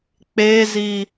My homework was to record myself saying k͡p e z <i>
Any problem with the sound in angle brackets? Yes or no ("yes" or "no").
no